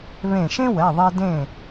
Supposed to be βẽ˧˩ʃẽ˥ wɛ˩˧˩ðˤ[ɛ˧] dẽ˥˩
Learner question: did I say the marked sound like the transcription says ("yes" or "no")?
no